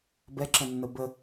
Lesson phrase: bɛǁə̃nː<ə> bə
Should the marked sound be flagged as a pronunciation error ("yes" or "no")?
no